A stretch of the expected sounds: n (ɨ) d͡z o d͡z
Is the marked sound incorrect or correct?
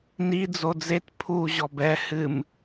incorrect: i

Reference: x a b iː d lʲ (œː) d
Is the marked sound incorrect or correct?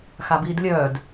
correct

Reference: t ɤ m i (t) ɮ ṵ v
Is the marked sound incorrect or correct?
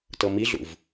incorrect: none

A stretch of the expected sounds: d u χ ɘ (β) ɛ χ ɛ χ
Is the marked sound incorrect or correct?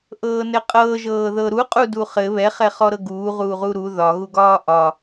correct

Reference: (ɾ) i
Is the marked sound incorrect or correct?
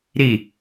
correct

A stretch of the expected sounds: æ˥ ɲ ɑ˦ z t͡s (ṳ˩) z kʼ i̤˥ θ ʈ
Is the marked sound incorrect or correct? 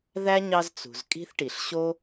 correct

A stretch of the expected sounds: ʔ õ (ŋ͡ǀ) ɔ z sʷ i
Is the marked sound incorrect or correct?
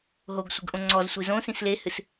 correct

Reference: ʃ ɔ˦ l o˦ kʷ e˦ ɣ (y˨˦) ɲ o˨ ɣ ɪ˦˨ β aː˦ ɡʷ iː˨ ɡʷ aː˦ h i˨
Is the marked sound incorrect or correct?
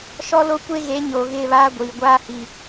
incorrect: e˨˦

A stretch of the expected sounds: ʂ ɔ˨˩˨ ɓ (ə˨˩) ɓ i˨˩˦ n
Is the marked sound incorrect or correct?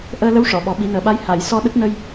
incorrect: ɔ˨˩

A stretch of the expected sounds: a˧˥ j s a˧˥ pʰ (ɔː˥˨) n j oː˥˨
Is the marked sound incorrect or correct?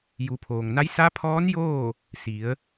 incorrect: ɔː˧˥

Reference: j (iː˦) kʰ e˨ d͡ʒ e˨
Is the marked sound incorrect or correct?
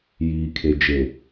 incorrect: iː˨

